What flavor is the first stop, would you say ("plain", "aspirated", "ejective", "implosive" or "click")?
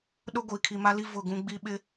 implosive